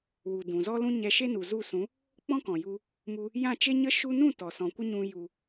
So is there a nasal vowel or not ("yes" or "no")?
yes